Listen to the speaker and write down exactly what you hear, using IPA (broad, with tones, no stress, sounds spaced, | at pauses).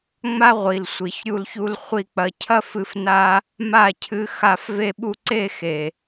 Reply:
ŋ͡m a˦ ʁʷ i˨ l sʷ i˨ ç ɾʲ u˧ l ç u˧ l χʷ i˨ k͡p ɐ˨ cʰ ɐ˧ f ɨ˧ f n a˦ | m a˦˨ cʰ ɨ˧ x a˧ f v e˧ ɓ u˧ ǀ e˦˨ x e˨